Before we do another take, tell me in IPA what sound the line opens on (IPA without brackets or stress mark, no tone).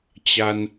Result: t͡ɕ